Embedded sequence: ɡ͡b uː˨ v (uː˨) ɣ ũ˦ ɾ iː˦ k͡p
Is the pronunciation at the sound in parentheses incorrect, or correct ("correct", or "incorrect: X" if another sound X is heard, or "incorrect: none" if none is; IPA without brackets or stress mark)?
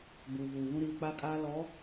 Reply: correct